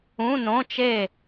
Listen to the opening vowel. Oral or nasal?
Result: nasal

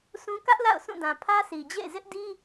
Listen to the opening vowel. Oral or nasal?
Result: nasal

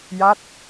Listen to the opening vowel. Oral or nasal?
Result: oral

